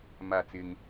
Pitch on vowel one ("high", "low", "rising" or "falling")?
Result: falling